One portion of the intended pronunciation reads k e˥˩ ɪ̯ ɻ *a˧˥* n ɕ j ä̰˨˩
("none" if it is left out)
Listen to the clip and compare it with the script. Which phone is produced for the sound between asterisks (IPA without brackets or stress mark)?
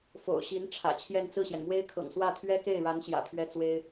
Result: a˧˥